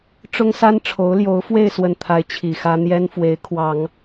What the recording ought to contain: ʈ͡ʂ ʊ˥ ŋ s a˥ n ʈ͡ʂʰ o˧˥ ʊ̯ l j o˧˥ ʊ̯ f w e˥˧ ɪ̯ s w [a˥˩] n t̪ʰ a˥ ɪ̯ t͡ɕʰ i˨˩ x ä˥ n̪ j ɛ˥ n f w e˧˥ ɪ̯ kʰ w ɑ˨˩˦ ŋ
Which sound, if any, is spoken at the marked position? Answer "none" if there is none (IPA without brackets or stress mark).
ə˥˩